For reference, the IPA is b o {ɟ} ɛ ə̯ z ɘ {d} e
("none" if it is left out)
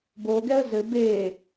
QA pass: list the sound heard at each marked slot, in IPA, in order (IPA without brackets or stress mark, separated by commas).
ɡ, b